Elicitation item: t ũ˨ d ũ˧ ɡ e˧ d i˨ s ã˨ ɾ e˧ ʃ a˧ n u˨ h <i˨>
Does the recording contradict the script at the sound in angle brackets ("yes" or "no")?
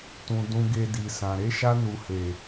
yes